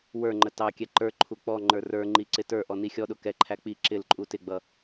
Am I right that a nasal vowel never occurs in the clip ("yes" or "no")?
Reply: yes